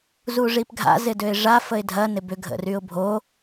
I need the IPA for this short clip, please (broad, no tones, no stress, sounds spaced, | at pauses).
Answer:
z u ʐ i p ɡʱ a̰ z ɪ d ø ɪ̯ ʐ a f ə ɪ̯ dʱ ɐ n ɪ b ʏ ɡʱ ə̰ r y ʊ̯ bʱ o